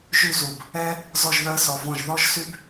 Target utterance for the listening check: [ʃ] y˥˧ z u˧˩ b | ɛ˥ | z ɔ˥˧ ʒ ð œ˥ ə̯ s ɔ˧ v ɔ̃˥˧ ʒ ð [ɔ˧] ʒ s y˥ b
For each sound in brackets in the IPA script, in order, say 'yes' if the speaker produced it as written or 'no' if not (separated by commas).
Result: no, no